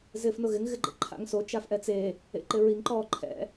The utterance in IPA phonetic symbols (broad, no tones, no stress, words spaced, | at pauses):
zɪːfnʊɣɪŋ ɣɪɡ͡ǃḛǃʰa̰ŋso t͡ʃafʔɛt͡se | ḛǃɪɹiŋ ǃɔːǃʰɛ̰